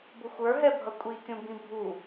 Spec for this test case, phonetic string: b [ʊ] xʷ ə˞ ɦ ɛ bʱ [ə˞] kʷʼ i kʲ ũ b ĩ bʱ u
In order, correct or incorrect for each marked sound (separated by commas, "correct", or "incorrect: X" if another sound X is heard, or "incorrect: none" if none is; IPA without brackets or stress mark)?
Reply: correct, incorrect: ʌ